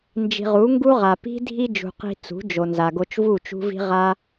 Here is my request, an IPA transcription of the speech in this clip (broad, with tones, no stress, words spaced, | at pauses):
nd͡ʒi̤˨ʁu˨˦ŋɡu˦ʁa˨ pi̤˦ dʱi˦d͡ʒṳ˨qi̤˧ t͡sṳ˨˦d͡ʒo˨nza˨ ɡo˧t͡ʃvu˦˨t͡ʃṳ˦vi̤˦ ʁa˦